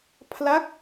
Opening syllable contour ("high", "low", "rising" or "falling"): falling